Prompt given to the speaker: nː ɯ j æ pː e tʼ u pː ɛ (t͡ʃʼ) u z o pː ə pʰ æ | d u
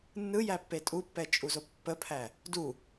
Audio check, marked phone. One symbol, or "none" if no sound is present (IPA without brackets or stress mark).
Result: t͡ʃʼ